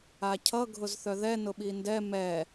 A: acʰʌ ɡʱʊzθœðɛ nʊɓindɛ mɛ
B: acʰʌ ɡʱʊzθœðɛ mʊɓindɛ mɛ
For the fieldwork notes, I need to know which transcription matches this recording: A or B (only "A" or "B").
A